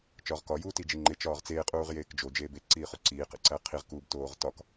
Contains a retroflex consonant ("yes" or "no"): no